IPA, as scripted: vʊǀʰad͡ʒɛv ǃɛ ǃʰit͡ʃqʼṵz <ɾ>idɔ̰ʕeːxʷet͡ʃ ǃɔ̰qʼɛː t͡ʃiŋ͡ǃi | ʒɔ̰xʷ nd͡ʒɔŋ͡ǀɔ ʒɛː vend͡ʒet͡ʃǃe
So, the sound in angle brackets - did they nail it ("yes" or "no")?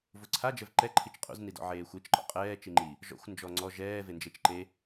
no